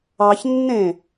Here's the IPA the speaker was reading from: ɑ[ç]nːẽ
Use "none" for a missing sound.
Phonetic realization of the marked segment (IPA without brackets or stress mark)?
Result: ç